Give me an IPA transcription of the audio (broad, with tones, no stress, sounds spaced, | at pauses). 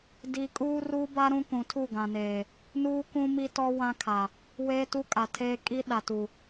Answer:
d i˦ kʼ uː˦ r uː˦ b a˦ ɾ ũ˦ k ũ˨˦ tʰ u˦˨ ɡ ã˨ n eː˨ | n uː˦ k ũ˦ m i˦ t ɔ˦ w ã˦ kʰ a˨ | w eː˦ t u˦ kʼ a˨ tʰ eː˦ kʼ i˦ ɗ a˨ t u˨